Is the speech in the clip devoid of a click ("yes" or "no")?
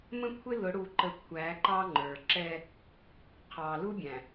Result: no